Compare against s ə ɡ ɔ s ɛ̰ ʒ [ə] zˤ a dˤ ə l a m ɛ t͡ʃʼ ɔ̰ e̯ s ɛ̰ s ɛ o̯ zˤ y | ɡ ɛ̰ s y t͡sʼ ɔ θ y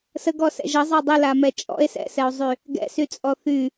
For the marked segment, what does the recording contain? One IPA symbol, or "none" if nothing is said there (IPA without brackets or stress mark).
ə